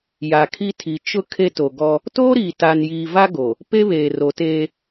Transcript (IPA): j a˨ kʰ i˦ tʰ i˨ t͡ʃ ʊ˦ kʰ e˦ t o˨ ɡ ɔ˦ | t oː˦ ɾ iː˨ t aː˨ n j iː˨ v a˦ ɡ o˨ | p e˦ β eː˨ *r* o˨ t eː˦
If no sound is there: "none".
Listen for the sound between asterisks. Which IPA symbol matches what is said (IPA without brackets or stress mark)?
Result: r